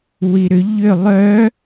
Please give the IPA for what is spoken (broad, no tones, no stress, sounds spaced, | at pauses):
w i ɾ ʏ ʎ ʏ lˠ œ